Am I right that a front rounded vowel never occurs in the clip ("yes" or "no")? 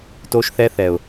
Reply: yes